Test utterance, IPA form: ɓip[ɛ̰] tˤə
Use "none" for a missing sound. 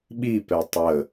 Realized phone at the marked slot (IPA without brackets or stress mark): ɛ